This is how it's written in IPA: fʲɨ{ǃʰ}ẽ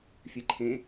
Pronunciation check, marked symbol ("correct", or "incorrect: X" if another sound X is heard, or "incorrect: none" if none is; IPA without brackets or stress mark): correct